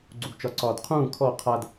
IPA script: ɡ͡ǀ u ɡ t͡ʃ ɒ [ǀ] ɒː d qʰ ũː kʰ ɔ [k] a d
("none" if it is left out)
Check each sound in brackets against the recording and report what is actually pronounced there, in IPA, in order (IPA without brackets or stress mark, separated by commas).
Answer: ǀ, qʰ